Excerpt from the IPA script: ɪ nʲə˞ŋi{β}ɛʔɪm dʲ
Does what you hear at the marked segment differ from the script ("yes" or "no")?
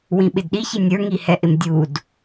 yes